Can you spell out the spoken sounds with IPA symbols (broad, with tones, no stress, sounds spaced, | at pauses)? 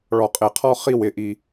ɭ ɔ˨ qʼ e˨ qʰ ɔ˦ χ i˦˨ w ɪ˦˨ ʔ i˦